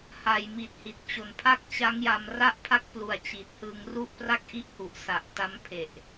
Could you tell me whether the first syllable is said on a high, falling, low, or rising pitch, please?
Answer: low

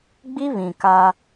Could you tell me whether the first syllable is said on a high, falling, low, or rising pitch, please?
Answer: high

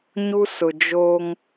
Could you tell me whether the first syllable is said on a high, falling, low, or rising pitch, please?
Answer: high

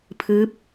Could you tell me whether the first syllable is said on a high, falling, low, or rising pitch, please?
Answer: rising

